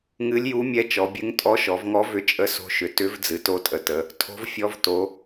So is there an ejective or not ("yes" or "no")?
yes